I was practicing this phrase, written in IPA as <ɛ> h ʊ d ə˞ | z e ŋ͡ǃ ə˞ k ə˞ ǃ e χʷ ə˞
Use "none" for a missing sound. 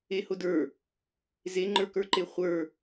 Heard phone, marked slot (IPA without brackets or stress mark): e